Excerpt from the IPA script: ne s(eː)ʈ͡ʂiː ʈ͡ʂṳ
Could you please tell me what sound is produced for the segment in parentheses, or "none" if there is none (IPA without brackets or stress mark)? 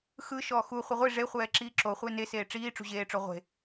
eː